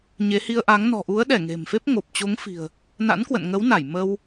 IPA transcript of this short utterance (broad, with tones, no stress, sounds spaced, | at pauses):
ɲ e˨˦ h i˧ ə̯ ʔ a˨˦ ŋ n ɔ̤˨˩ ʔ u˨˦ ə̯ ɗ ɛ˧˩ ŋ e̤˨˩ m f e˦˥ p̚ ŋ o˨˩ p̚ t͡ɕ o˨˦ ŋ f i̤˨˩ ə̯ | n a̰˧˥ n k w ə̰˧˨ n ŋ ə˨˦ w n a˧˩ j m ə˧ w